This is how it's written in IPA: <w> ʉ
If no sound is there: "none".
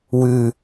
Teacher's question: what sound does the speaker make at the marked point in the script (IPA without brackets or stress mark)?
w